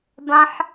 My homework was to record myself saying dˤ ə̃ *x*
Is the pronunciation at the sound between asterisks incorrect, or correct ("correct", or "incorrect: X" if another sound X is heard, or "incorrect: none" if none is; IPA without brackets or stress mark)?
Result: incorrect: ħ